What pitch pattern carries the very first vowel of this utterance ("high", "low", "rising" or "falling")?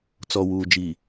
low